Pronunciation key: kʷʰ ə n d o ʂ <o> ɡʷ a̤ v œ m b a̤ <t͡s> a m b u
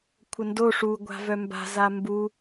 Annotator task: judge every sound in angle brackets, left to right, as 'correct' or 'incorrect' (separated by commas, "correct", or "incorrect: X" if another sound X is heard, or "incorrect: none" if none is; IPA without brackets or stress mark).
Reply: incorrect: u, incorrect: z